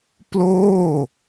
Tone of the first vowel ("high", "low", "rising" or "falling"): falling